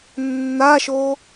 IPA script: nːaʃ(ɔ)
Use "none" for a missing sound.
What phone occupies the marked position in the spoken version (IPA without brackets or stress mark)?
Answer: o